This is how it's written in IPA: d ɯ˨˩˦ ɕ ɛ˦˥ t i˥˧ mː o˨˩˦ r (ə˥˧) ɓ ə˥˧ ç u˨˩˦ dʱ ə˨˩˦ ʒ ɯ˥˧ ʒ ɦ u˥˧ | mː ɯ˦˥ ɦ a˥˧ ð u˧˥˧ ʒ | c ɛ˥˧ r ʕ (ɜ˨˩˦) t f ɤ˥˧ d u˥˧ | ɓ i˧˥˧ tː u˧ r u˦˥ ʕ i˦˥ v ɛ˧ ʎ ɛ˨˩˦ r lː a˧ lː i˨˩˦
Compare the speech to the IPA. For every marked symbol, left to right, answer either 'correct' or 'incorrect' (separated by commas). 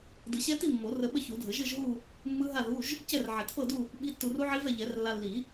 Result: incorrect, incorrect